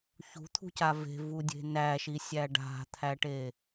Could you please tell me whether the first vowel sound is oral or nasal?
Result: oral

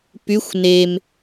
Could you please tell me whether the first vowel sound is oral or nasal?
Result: oral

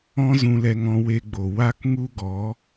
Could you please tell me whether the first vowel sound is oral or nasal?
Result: nasal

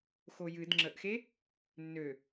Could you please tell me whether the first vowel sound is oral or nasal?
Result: oral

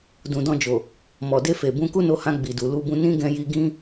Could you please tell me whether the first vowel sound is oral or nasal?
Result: nasal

